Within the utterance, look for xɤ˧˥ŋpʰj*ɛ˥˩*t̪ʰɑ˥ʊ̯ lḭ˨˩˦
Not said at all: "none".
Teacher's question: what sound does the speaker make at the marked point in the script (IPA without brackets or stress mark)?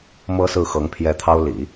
ɛ˧˥